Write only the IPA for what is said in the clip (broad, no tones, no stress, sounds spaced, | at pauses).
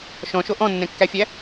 ʃ ɔ̃ ʃ o ʔ ɔ̃ nː ɛ̃ kː æ fʲ æ